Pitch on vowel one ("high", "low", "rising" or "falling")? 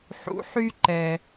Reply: rising